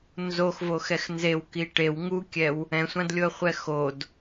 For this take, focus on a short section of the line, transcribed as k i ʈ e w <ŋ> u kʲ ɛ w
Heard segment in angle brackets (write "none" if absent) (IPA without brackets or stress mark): ŋ